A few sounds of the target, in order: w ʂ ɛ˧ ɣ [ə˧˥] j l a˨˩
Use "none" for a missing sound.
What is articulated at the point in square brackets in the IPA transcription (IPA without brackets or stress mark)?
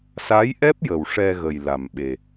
ə˨˩